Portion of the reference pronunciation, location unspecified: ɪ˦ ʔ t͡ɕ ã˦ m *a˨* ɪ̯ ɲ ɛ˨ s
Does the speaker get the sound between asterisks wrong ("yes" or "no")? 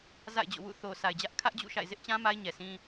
yes